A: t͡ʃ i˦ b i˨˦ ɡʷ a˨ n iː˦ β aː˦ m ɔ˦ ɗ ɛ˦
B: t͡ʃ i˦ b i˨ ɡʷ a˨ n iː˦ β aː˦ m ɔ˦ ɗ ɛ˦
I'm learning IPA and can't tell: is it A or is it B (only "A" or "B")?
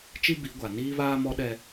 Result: A